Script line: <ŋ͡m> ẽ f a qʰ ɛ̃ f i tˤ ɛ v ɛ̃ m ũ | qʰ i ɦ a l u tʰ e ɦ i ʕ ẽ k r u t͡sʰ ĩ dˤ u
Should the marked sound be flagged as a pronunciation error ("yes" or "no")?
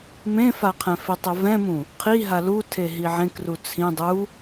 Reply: yes